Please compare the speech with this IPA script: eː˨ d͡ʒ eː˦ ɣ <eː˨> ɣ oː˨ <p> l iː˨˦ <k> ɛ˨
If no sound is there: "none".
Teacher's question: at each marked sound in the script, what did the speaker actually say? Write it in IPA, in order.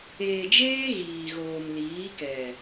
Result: iː˨, m, k

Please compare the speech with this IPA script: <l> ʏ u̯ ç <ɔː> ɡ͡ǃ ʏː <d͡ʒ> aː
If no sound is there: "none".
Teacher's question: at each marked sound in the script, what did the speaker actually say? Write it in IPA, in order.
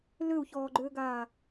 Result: l, ɔː, ɡ

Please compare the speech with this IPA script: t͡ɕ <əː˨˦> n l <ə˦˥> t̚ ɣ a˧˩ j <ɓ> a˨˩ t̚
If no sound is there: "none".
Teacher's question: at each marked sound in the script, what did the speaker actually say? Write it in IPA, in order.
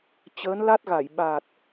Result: əː˨˦, a˦˥, ɓ

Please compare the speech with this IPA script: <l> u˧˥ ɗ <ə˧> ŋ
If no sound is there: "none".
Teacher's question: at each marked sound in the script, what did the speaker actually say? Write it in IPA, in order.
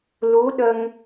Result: l, ə˧

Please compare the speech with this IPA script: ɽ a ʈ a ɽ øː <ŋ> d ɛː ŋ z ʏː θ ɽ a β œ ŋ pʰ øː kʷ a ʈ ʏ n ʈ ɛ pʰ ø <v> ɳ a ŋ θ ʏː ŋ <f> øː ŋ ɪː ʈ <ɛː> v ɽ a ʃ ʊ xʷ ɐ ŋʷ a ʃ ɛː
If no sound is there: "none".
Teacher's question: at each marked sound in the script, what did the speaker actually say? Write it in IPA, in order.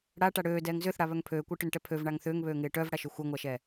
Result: none, v, β, œː

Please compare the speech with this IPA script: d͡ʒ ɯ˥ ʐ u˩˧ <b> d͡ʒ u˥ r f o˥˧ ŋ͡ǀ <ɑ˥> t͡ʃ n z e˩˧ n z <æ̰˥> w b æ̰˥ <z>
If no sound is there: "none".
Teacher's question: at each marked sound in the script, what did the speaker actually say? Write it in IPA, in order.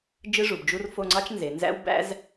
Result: b, ɑ˥, æ̰˥, z

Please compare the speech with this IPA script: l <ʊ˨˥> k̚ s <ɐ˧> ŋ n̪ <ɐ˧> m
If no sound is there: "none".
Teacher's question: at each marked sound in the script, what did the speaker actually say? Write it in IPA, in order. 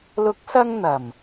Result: ʊ˨˥, ɐ˧, ɐ˨˩

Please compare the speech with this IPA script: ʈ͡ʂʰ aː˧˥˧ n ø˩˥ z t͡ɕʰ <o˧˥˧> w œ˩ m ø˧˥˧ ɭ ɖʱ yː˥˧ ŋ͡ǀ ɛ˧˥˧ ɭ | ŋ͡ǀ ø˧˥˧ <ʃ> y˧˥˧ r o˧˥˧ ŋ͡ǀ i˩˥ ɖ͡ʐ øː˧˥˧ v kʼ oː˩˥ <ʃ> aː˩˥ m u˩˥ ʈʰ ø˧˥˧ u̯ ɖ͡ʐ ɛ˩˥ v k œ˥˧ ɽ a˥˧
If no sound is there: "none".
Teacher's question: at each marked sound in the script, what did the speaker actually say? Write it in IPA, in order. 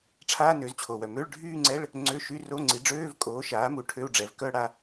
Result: o˩, ʃ, ʃ

